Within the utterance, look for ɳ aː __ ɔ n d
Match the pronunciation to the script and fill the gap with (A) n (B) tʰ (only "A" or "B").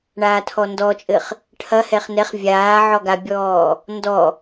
B